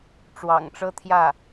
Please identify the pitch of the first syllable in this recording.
low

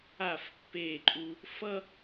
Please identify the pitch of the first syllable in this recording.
falling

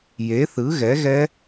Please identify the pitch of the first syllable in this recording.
rising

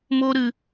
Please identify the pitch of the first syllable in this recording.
high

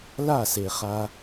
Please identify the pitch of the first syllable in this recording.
falling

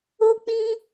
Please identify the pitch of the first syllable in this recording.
high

